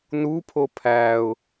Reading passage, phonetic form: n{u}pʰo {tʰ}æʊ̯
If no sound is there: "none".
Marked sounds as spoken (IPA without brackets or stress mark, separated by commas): u, pʰ